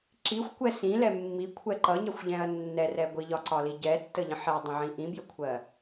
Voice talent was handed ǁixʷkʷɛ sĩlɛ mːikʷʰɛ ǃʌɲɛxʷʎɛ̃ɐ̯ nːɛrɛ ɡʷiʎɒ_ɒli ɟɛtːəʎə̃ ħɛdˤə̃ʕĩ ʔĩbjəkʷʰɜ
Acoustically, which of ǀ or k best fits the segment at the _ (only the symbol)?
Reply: ǀ